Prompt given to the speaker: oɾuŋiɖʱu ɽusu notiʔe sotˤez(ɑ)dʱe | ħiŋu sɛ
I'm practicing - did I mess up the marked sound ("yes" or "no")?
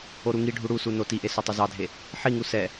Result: no